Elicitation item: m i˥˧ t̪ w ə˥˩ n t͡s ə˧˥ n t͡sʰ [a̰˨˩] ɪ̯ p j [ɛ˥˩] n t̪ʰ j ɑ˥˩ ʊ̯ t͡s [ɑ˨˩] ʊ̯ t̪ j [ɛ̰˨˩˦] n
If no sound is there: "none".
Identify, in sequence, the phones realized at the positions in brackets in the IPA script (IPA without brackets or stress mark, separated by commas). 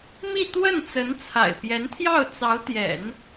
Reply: a̰˨˩, ɛ˧˥, ɑ˧˥, ɛ̰˨˩˦